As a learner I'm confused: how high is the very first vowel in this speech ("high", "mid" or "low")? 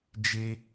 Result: mid